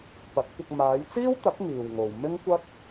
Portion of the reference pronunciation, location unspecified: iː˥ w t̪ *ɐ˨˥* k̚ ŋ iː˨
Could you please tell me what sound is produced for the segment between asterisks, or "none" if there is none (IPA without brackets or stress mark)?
ɐ˨˥